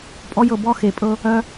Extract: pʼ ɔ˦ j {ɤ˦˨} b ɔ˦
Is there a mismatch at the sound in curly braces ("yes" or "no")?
yes